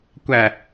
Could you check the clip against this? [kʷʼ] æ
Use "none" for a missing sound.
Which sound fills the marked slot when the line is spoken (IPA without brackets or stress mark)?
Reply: kʷ